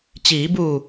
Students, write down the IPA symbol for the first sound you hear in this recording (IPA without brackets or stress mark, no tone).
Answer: t͡ɕ